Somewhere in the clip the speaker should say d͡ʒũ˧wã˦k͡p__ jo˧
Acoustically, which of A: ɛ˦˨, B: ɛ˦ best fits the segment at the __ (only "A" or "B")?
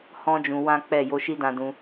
A